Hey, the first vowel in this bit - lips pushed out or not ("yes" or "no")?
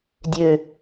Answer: yes